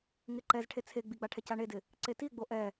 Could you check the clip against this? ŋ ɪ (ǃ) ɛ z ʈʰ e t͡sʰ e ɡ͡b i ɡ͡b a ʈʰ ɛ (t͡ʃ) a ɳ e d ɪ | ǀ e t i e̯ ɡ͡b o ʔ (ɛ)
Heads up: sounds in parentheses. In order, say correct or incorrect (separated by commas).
correct, incorrect, correct